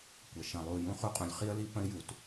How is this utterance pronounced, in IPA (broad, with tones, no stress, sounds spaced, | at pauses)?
kʷ ə˩ ʃ ə̃˩ lˠ u˩ j ũ˥ χ u˥ qʼ ũ˩ lʲ χ i˥ ə̯ l i˥ p ə̃˥ ɪ̯ j u˩ t